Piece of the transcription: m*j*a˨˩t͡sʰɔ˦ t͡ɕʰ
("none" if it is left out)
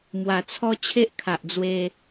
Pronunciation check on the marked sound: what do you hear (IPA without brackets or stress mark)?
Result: w